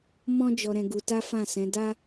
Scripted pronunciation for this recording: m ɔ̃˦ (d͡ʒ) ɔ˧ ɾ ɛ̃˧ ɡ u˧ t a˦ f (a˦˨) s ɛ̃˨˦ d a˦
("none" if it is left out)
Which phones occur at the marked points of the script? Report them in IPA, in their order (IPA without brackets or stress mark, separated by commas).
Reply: d͡ʒ, ã˦˨